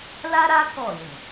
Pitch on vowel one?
high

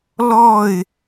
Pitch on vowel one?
falling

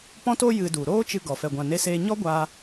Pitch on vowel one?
high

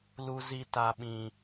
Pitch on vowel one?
high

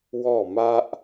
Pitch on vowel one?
falling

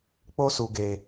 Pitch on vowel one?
high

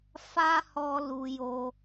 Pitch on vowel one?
high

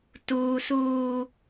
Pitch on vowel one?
high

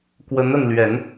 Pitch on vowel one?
rising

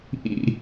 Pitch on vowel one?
falling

